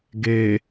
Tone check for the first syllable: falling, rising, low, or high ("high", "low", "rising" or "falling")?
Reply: low